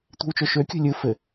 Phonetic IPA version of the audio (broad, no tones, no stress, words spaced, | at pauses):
tʷi̤wt͡ʃoʃøkʲṳ lʲɯ fɘ